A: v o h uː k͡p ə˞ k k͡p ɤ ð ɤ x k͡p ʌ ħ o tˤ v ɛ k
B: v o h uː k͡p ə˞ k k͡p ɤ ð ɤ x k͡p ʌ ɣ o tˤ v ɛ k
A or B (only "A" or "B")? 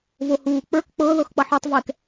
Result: A